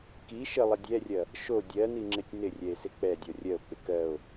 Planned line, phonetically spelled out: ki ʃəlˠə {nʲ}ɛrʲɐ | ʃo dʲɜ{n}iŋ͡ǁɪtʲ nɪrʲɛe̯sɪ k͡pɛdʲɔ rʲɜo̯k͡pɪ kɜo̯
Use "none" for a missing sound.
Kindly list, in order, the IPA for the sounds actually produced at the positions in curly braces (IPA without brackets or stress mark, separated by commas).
dʲ, n